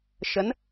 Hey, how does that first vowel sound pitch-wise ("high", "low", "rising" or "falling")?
rising